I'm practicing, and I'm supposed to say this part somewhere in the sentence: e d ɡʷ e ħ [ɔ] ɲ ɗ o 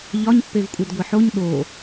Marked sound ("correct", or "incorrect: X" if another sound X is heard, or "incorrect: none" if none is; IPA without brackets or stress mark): incorrect: o